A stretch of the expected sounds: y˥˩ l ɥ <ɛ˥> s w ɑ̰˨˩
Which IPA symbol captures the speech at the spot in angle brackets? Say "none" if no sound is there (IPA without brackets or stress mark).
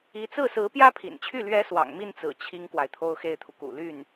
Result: ɛ˧˥